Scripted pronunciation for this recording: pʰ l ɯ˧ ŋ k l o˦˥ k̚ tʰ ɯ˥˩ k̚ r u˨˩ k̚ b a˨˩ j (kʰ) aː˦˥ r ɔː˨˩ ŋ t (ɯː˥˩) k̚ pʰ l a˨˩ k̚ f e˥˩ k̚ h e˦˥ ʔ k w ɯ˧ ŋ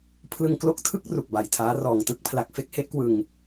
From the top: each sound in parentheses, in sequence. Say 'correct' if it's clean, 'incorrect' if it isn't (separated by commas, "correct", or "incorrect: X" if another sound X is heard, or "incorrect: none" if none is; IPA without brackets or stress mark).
incorrect: tʰ, incorrect: ɯ˥˩